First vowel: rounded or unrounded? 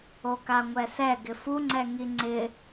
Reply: rounded